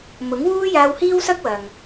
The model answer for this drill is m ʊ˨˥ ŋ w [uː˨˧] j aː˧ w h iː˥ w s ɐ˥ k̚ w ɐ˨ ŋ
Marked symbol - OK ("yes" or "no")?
no